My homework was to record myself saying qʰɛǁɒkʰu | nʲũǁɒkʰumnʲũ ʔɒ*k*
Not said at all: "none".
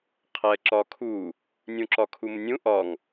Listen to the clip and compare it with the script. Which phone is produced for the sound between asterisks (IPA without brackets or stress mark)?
ŋ